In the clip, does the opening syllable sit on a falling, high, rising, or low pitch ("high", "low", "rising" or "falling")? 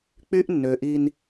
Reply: high